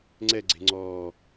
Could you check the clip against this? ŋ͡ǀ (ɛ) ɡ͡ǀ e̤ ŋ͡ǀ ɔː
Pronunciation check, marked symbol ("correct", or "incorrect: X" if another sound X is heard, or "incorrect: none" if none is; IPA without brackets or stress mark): correct